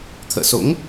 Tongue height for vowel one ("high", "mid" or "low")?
mid